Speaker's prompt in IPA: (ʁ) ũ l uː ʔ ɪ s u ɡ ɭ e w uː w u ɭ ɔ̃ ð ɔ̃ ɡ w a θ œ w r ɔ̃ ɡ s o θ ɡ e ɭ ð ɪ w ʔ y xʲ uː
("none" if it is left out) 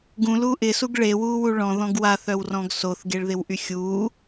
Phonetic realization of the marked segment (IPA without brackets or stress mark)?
ɡ